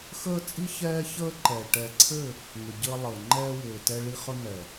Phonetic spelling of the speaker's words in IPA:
x əː˦ t͡sʼ i˦ ç ɛː˦ ç əː˦ ǃ ɛ˨ ʈ ɛ˨ ǀʰ ɘ˦˨ | ŋ ʏ˨ ɟ əː˦ lˠ əː˨ ŋ͡ǃ ɛː˦ w ʏː˨ t ɛ˦ ɭ i˦ χ ɵ˦ n̪ ɛ˨

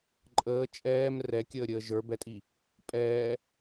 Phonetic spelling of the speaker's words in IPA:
ǃʼ əː t͡ʃʼ ɛː m r ɛ kʲ əː ɾʲ əː ʒ ə˞ b ɛ tʼ i | pʼ ɛː

